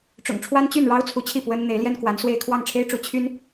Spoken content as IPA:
ʈ͡ʂʊ̰˨˩ŋʈ͡ʂʰwa˥n t͡ɕy˥˩nɻɑ˥ʊ̯ t͡sʰu˧˥t͡ɕʰi˥˩ pwə˥n n̪e˧˥ɪ̯ljɛ˥nkwa˧˥nswe˥˧ɪ̯ kʰwɑ˥˩ŋʈ͡ʂʰe˥ɪ̯ʈ͡ʂu˧˥ t͡ɕʰy˥n

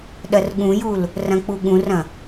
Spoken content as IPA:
ɗɐrɠũjul | rɐ̃k͡puɠũrɐ̃

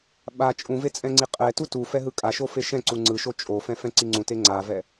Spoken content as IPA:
ɓa t͡ʃʼũve t͡sʼɛ̃ŋ͡ǀiqʼɛtu tu fɛɦɯkʼaʃo feʃɛ̃ǀu ŋ͡ǀɯʃo t͡ʃʼofɛ̃ fɛ̃ǀiŋ͡ǀũte ŋ͡ǀavɛ

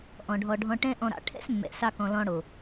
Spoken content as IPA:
ʔɔ̃˨ɖʱɔ˧ɖʱɔ̃˦ ʈɛ̃˦ ʔɔ̃˧ɾɑ̰˧ ʈʰɛ̰˦smːɛ̰˨sɑ˧kɔ̃˨ lɔ̃˧ɽo˨

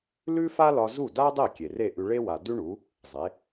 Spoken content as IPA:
lʉ˥fa˥lɒ˧ zu˥˩da˥dˤe˥˩ kʲe˩re˥˩ʔʉ˧ ɭe˥wa˩ dʉ˥ɳu˩˥ | zˤe˩˥

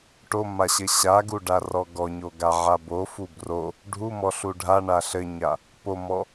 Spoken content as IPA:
ʈomaɕɘ ɕaɡuɖarɔ ɡɔɲoɡaʕa bofu bro | ɖʱumɔɬu ɖʱaɳa ɬɘɲa | pomɔ

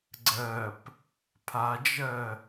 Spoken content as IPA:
ɡ͡ǀɜp | pʰad͡ʒɜ

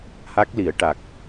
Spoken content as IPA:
ha˦˥k̚li˨˩˦ə̯ ʈa˨˩k̚

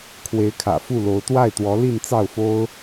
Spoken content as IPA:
kʰwe˧˥ɪ̯kʰä̰˨˩ fu˥˩lo˧˥ʊ̯ t̪wa˥˩ɪ̯t̪wɔ˧˥li˥˧n t͡sɑ˥˩ʊ̯fo˥ʊ̯

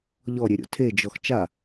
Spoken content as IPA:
ʎɔɾʲeɾʲo̰ tʰed͡ʒɔx t͡ʃa

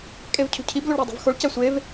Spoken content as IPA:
kʼevcʰṳcʰib loɭɾædˤṳvxoɭ cæsʷev

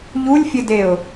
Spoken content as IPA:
ʎulʲfʲɘdeʊ̯

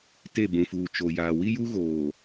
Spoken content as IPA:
te˦˨bũ˨fuː˨ t͡ʃo˨jaː˨ wi˦ju˦ɣoː˨

